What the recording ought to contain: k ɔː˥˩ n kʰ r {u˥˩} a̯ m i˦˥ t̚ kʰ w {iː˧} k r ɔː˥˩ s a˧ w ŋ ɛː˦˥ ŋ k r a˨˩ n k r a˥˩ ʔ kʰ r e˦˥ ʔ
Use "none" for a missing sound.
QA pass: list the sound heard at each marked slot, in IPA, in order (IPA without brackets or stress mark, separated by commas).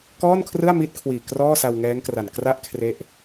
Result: ɯ˥˩, iː˨˩